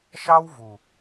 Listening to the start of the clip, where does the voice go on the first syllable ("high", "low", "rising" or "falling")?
high